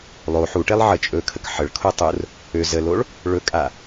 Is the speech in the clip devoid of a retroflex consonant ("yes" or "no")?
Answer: no